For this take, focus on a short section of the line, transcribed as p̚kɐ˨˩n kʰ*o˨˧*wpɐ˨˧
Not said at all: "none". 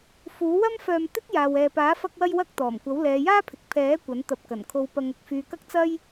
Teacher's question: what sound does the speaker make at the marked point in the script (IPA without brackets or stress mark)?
o˨˧